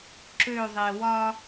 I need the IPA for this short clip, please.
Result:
ǁ ø ðˤ e w ɒ

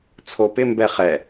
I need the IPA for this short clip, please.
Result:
t͡sʰ o p ɪ m b ɛ χ ɛ

